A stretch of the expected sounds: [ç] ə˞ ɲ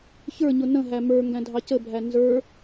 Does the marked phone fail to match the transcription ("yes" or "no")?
no